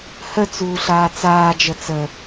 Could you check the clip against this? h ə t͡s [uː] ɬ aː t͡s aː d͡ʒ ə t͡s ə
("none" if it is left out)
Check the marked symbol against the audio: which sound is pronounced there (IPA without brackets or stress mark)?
uː